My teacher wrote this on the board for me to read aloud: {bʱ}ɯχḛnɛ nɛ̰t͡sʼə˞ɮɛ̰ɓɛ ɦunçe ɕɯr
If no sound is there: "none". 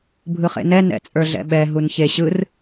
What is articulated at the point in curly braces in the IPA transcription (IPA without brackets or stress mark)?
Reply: bʱ